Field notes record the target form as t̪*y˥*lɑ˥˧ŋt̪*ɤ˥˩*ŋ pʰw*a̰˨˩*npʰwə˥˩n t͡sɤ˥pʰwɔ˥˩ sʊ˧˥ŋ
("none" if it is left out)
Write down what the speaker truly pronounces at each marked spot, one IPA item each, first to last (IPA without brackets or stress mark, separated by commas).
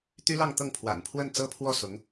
y˥, ɤ˥˩, a̰˨˩